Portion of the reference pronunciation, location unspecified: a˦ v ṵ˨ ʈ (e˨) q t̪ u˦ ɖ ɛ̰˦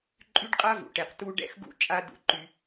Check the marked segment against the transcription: correct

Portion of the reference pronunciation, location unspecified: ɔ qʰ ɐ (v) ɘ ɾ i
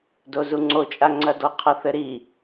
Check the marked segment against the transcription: incorrect: θ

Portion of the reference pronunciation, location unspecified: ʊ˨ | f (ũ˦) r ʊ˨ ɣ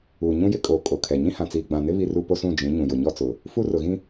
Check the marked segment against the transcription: incorrect: u˦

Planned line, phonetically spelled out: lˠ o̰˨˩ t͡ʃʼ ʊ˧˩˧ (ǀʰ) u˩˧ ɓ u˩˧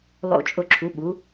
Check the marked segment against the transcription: incorrect: ǁʰ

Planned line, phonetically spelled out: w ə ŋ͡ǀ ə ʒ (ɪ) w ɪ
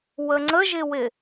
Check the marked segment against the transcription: correct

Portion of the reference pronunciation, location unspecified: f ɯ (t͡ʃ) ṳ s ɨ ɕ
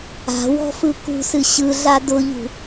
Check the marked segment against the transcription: incorrect: k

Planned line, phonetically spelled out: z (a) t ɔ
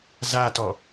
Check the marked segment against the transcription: correct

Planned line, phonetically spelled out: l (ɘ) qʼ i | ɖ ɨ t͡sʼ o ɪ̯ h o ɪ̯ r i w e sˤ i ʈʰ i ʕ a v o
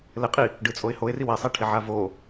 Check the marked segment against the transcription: correct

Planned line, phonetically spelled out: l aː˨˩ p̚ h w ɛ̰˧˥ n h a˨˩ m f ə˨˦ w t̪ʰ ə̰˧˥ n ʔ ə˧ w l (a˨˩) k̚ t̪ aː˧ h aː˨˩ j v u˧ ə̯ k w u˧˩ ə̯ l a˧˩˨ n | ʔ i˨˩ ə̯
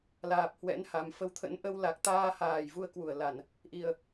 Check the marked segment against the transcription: correct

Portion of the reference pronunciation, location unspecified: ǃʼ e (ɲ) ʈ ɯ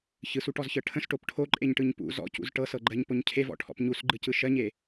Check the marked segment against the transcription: correct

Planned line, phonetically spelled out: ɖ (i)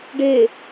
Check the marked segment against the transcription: incorrect: e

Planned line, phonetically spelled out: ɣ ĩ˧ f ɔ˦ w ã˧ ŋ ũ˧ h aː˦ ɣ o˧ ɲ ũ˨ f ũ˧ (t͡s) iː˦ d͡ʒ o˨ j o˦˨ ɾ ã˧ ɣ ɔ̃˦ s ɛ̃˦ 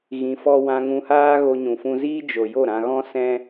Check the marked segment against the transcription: incorrect: z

